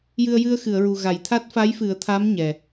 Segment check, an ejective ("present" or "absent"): absent